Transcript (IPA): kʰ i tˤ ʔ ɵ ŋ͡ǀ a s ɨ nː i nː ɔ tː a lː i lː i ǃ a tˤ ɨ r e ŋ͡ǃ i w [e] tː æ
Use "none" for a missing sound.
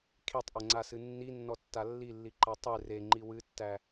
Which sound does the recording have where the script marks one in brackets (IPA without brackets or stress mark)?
ɨ